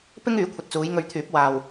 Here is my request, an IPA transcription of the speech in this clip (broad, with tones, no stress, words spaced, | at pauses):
pɪ˥ŋ yː˨˥kʷʰɐ˨t̚t͡suː˨˧j ŋɵ˧ɥt̪ʰyː˨˥p̚ waː˨w